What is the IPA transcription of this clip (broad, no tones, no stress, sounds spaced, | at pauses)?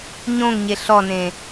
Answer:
ɲ õ ŋ ɲ e ɬ ɔ n ẽ